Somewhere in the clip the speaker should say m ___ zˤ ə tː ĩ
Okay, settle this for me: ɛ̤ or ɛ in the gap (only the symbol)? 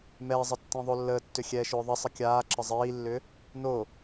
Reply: ɛ